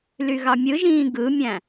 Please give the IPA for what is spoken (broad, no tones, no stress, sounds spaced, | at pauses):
l y ɣ ɑ mʲ ɯ ʒ ĩː ɡ ɯ mʲ æ̃